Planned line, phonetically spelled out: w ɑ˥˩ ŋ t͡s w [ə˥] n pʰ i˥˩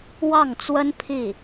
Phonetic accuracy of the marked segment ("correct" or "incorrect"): correct